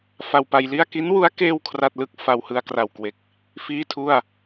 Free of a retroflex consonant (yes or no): yes